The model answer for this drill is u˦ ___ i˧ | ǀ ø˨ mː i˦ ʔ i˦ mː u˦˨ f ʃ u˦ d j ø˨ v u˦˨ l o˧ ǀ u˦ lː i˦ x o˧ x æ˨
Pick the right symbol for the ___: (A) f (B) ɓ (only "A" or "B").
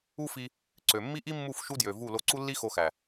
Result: A